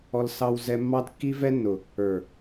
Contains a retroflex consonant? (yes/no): no